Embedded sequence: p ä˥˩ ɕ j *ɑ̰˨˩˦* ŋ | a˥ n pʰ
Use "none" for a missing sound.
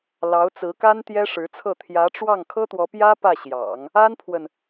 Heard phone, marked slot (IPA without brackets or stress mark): ɑ̰˨˩˦